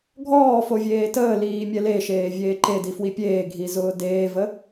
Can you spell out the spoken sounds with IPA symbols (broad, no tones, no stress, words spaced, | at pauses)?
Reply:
ɡʱɔːfovʲeː təːliːmʲɛ leʃeːvʲeː ǃedifwi pʲeːɡʱizʊː deːvə